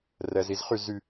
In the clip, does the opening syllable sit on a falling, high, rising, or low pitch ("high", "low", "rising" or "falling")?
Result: low